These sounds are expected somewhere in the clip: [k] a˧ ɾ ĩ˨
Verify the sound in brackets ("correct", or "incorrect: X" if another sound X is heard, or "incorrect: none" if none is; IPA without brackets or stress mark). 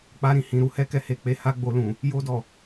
incorrect: k͡p